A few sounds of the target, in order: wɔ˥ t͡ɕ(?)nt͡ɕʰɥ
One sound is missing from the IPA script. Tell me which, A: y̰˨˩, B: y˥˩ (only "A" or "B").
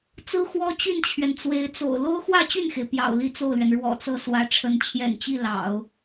B